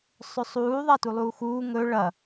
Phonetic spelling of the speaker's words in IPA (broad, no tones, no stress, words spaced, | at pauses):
sˤɵsˤuː ðˤatulˠuːxuː ŋɵ ɭɐ